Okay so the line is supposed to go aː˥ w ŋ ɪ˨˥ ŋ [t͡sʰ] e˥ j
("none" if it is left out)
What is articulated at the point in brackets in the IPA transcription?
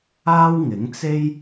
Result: t͡s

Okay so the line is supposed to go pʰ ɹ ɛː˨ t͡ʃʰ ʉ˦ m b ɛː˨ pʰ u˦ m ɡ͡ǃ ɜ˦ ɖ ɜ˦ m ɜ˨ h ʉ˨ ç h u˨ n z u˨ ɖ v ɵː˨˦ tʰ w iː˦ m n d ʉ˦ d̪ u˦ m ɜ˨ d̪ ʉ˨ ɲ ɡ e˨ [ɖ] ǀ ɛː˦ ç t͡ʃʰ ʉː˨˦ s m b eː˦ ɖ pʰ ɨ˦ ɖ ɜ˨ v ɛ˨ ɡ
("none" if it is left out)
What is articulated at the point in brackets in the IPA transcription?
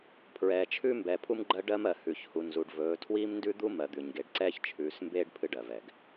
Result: ɖ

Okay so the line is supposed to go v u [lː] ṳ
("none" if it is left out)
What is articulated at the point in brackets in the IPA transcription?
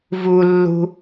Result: lː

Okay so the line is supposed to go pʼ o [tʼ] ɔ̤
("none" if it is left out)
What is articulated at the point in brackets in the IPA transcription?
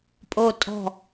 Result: tʼ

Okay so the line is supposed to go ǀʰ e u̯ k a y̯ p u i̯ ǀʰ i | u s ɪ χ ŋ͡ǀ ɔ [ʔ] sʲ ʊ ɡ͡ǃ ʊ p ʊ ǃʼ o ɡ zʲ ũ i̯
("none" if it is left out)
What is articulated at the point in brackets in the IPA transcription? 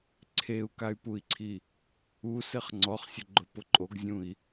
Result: χ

